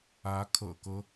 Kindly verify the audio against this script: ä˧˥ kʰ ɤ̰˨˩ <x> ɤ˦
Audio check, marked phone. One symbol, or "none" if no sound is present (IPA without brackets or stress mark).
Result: k